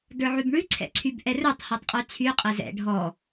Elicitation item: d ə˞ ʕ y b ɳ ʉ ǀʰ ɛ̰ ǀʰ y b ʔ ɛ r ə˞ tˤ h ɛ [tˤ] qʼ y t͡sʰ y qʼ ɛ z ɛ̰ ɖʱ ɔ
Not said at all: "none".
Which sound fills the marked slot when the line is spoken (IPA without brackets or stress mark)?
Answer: tˤ